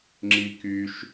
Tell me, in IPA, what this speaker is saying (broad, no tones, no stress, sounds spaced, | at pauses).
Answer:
ŋ͡ǁ i k y ʃ